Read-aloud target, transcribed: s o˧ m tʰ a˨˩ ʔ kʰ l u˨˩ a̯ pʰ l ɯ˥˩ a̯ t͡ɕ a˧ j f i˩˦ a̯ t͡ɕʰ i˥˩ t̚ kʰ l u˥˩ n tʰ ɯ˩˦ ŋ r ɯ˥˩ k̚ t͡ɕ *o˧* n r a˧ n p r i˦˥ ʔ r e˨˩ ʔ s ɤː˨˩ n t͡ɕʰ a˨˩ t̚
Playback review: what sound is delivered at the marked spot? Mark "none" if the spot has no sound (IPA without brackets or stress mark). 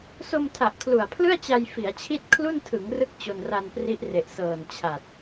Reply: o˧